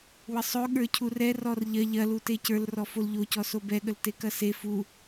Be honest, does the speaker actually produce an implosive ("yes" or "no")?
yes